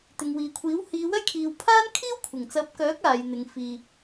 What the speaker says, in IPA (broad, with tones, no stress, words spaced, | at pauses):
t̪ɪ˨ŋwiː˨kʷʰiː˨˥w hiː˨˧wɐ˥jkʰiː˨w pʰaː˥nkʰiː˥w kʷʰɪ˨˩ŋt͡sɐ˨˥p̚kœː˨˥k̚ aː˨˧jn̪ɪ˨˧ŋfiː˧